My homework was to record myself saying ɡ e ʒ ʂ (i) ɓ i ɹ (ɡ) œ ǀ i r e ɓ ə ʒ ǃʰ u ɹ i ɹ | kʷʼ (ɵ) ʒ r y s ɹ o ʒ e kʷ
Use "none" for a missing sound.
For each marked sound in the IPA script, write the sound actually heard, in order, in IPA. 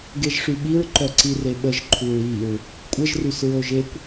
y, ǃ, ə

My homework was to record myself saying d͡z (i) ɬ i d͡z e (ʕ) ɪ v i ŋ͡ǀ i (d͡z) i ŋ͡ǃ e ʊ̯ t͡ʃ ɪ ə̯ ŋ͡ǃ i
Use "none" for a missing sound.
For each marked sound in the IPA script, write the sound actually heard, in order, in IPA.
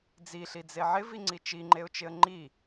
i, ʕ, t͡ʃ

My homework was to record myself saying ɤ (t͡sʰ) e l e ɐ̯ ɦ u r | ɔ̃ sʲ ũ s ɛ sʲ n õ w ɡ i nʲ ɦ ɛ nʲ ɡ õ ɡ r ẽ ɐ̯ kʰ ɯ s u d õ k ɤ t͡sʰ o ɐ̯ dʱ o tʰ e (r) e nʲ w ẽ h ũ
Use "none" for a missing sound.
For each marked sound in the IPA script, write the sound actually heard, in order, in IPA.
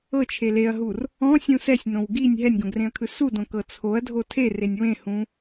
t͡ʃʰ, r

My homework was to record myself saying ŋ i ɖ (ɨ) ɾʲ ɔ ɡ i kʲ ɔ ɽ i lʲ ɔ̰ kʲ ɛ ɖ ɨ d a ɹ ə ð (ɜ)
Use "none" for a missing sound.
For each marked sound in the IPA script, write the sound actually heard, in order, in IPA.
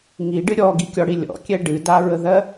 ɨ, ɜ

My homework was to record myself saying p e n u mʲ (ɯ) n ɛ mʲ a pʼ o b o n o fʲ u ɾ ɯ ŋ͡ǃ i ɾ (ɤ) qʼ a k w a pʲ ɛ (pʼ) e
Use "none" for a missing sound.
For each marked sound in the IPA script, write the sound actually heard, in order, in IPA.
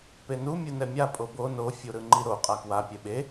ɯ, o, ɓ

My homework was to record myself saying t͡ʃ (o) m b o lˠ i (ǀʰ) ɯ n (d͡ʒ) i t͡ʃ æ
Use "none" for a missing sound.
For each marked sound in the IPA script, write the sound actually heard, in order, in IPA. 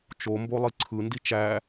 o, ǀʰ, d

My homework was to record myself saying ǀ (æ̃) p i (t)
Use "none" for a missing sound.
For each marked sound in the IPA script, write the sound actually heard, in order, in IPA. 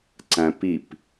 æ̃, p

